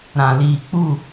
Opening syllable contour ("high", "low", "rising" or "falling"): low